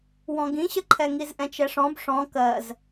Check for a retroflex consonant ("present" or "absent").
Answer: present